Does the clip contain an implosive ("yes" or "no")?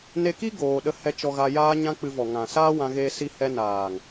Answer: yes